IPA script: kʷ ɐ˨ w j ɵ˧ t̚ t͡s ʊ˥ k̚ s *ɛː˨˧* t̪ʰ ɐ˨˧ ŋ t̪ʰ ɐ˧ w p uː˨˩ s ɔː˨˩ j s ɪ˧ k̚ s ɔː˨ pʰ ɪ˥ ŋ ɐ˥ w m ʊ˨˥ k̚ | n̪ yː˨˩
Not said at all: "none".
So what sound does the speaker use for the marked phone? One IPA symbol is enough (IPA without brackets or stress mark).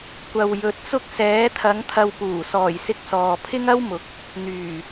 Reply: ɛː˨˧